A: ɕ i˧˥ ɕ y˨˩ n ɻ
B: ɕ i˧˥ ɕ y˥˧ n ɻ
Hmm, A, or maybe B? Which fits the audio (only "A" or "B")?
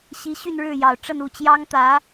B